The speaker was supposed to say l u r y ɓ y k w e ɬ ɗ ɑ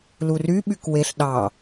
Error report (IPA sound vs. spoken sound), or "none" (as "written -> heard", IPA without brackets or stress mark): none